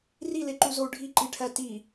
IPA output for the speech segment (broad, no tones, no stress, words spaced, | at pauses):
rileǃuzou̯ ɖʱiǃiʈʰæ ti